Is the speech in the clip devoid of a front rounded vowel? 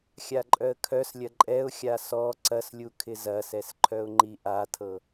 no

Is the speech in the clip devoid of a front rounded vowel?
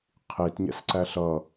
yes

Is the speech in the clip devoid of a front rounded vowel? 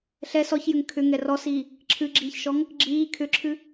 no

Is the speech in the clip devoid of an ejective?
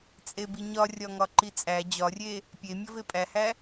no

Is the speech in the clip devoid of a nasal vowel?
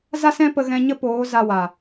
no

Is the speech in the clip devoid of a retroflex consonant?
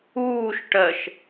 no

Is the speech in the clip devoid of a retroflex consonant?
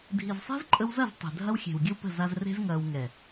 yes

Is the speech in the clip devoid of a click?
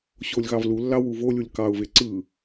no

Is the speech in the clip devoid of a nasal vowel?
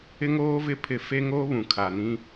no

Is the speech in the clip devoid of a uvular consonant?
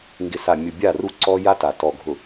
yes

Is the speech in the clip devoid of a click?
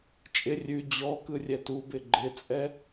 no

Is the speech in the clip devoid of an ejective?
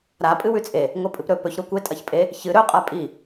no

